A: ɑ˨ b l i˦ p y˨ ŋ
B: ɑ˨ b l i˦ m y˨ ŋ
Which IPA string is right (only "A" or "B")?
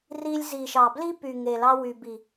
A